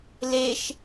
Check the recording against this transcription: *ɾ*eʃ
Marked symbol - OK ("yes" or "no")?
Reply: no